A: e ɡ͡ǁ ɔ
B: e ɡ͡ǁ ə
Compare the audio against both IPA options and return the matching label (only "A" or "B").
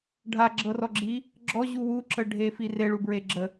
B